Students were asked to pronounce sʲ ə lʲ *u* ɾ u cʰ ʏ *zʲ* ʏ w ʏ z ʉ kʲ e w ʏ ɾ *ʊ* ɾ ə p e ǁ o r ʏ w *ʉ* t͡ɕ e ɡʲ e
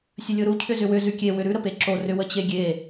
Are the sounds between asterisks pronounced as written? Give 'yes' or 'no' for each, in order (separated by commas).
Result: no, no, no, no